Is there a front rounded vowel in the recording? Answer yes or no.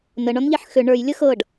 yes